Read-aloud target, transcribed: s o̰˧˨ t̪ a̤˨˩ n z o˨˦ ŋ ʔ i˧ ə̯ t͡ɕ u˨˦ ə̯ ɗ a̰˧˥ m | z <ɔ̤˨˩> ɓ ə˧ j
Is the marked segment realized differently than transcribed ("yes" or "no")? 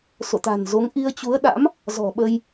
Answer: no